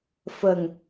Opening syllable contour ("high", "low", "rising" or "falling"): low